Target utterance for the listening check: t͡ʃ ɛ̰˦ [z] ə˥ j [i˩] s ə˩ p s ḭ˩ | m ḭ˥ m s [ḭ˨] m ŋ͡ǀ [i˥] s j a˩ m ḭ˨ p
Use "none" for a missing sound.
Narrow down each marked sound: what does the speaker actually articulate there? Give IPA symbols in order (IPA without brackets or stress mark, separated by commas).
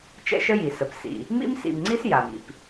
ʃ, i˩, ḭ˨, i˥